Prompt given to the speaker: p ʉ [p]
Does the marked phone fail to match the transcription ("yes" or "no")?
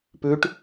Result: yes